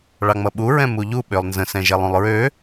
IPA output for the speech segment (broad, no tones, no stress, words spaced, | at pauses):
ɭɑŋ͡mʌɓu ɹɛ̃muʎu ɓølˠnzə̃ sɛ̃ʒɛlˠũlˠɹø